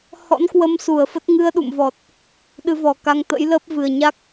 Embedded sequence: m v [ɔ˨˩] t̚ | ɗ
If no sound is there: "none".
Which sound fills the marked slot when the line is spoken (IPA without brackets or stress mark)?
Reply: ɔ˨˩